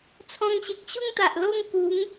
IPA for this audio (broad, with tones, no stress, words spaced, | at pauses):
t͡sʰɔ̃˧ŋɕe˨k̚ ɕu˥˧ŋt̪a˨ʔlo˥˧ŋku˨˦ŋ